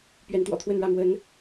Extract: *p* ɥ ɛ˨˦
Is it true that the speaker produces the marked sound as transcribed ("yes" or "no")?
yes